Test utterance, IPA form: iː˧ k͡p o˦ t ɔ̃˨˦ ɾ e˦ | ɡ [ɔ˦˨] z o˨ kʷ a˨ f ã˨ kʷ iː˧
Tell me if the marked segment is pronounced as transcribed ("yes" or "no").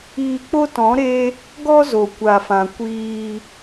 no